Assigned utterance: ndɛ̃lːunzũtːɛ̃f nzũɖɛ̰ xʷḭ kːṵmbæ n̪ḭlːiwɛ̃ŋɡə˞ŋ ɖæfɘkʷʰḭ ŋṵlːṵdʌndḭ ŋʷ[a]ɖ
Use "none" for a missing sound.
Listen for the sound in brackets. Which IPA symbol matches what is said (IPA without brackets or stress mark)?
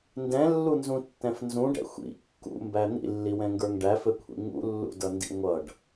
ʌ